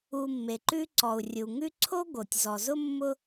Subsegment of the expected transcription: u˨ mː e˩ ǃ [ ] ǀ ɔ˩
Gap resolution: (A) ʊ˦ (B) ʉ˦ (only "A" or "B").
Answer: B